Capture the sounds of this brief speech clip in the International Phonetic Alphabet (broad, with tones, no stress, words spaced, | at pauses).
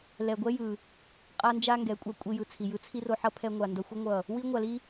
lɛ˨ɡʷɛ˦jɯ˨ | qʼa˦nd͡ʒa˦ ŋɡɛ˨˦kʷʼa˧ kʷʼi˧jɯ˨t͡sʰi˨ jɯ˧t͡sʰi˦ro˧ħʌ˦ pʰɛ˧ŋʷa˨ndʌ˧xʷʌ˦ ŋʷʌ˦˨ | wi˦ŋʷa˧li˦